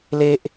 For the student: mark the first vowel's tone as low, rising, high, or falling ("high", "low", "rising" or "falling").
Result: high